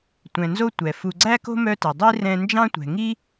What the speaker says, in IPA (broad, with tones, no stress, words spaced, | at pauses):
tʷɛ̃˨nzo˥ tʷɛ˩fu˨ ɡ͡ǀæ˥ko̤˥mœ˦tɛ˩ dˤi˥ rɛ̃˦ nd͡ʒɑ̃˦tʷɛ̤˩ŋi˦